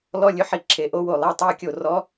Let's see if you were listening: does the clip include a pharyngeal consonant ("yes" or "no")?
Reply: yes